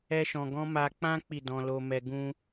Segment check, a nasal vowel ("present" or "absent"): present